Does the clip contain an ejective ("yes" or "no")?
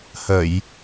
no